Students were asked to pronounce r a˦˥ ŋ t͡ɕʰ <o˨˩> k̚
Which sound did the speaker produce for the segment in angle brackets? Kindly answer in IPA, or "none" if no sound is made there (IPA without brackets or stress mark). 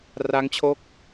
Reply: o˦˥